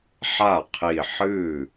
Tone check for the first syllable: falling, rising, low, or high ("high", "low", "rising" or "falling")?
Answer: falling